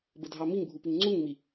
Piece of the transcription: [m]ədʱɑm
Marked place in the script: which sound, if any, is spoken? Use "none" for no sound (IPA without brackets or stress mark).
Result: b